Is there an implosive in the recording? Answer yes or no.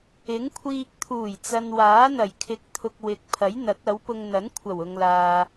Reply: no